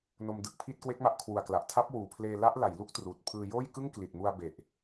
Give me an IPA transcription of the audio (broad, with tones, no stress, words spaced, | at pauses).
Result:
no˧mdɯ˨˩k̚pʰi˥˩t̚ kwe˦˥k̚ma˦˥ʔkʰwu˨˩a̯kla˨˩ʔ tʰa˦˥p̚ wuː˨˩pʰleː˧ la˦˥ʔla˩˦j lu˦˥k̚truː˨˩t̚pʰɯː˧joː˥˩j kɯ˥˩ŋkli˨˩t̚mu˧a̯ be˨˩ʔ